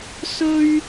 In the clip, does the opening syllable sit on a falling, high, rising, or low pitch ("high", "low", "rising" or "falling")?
high